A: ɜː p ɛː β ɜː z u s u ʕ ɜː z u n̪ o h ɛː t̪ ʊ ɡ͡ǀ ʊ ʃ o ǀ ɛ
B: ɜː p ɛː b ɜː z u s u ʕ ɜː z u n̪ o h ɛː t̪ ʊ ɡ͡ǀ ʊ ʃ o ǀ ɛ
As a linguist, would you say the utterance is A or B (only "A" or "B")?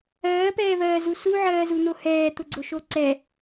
A